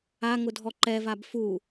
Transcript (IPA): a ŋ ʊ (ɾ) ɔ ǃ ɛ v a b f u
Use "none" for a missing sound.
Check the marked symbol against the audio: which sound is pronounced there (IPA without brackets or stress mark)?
dʱ